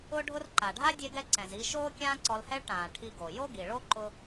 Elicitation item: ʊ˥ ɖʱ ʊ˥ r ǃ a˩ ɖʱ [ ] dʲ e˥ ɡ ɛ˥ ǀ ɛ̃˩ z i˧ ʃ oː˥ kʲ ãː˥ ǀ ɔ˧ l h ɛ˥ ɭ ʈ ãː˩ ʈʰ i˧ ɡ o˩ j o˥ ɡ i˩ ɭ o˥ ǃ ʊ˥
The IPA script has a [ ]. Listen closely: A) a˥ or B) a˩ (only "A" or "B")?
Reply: A